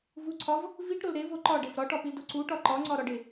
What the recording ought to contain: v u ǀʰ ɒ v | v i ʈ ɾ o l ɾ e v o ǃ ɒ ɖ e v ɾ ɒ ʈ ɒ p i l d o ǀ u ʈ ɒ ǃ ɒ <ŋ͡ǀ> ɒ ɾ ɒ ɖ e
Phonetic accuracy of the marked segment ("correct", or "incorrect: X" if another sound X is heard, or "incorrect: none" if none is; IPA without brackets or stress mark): correct